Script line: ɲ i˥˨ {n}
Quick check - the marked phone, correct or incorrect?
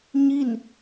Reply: correct